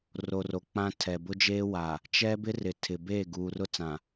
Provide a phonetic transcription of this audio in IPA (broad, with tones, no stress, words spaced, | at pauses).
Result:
ro˨ro˨ k͡pã˦ tʰɛ˨bʊ˦d͡ʒeː˦ wa˨ | t͡ʃɛ˦bɪ˦ rɪ˨tʰɪ˨ beː˦˨ɡuː˨rʊ˦t͡sã˨